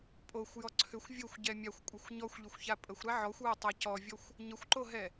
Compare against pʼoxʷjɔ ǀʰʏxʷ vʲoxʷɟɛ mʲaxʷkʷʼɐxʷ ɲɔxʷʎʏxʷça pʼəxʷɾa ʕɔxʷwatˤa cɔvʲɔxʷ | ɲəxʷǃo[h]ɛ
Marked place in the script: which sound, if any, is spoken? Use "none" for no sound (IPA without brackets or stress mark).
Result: ɦ